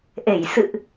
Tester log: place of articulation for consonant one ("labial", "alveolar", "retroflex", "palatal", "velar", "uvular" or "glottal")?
glottal